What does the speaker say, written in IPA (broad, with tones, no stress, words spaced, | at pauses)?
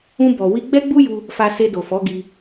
ũ˧bɔ˨ wi˧ɡ͡bɛ˦ɡ͡bu˦ju˧ | fa˧se˧do˨ fɔ˨˦ɡi˧